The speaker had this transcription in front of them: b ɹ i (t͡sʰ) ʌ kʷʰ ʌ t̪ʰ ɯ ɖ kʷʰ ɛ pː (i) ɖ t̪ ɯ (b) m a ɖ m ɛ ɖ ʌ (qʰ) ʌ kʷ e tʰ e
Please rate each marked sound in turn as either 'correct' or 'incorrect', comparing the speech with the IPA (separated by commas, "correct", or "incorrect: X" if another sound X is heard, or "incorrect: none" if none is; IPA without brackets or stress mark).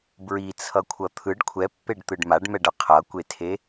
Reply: correct, incorrect: e, incorrect: ɖ, correct